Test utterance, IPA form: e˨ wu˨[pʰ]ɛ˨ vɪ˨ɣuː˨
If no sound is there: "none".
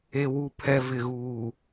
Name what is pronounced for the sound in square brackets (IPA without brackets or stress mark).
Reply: pʰ